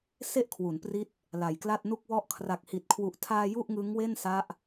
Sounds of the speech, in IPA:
s e˥˩ ʔ kʰ w u˩˦ n p r i˦˥ t̚ | l a˨˩ j k l a˥˩ t̚ n u˥˩ k̚ w ɔ˥˩ ʔ kʰ r a˨˩ k̚ h i˨˩ t̚ kʰ w u˨˩ ʔ tʰ aː˧ j u˥˩ ʔ ŋ ɯ˦˥ ŋ w e˥˩ n s a˦˥ ʔ

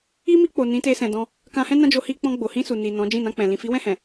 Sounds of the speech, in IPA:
i˦ m i˧ k͡p o˨ n ĩ˨˦ t e˧ s ɛ̃˨ d ɔ̃˧ | k ã˧ h ɛ̃˦ n ã˦ d͡ʒ o˧ h i˧ k͡p ɔ̃˧ ɡ͡b o˨ h ĩ˧ s u˨ n i˨ n ɔ̃˨˦ d͡ʒ ĩ˦˨ n ã˧ k͡p ɛ̃˨ l ĩ˨ f i˨˦ w ɛ̃˦˨ h ɛ̃˨

